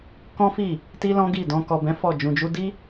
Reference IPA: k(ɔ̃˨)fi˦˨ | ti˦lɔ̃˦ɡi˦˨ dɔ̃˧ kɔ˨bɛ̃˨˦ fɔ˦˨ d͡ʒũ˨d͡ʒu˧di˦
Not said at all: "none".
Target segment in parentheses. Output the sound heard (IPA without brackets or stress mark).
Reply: ɔ̃˦